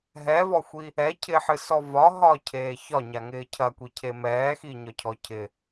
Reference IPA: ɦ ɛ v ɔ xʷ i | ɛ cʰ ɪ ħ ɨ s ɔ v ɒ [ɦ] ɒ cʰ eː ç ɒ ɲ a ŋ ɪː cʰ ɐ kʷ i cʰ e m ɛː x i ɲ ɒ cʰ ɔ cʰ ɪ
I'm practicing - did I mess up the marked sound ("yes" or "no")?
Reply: no